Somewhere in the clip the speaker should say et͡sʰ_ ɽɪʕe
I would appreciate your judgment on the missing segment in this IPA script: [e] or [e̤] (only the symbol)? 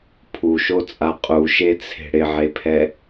e̤